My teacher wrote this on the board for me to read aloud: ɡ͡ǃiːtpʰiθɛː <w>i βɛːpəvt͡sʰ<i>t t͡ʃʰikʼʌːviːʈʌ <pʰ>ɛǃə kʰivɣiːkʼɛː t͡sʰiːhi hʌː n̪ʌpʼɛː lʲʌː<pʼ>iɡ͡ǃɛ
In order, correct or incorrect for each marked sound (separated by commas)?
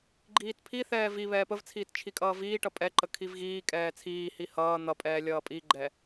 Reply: incorrect, incorrect, incorrect, correct